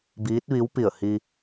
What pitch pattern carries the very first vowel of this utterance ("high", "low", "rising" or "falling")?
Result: rising